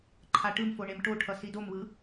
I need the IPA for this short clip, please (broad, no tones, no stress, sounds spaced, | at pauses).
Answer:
ǃʰ a ʈ ɯ m f o ɳ e m ʈ o ʈʰ ʌ s i d o m β ɯ